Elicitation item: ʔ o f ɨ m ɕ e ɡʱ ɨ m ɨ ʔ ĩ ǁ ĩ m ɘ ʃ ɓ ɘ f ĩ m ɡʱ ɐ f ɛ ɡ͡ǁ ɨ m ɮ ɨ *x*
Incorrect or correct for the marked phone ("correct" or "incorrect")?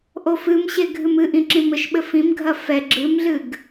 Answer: incorrect